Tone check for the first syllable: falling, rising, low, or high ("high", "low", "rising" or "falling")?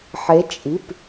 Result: rising